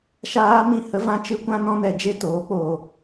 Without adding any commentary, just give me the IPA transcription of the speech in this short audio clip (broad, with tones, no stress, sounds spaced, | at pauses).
ʃ aː˦ m ĩ˦˨ h ə˦ v ã˦ t͡ʃ ɨ˦ kʷ ã˦ n ɔ̃˦ n ɛ˧ d͡ʒ e˦ t oː˨˦ k͡p oː˧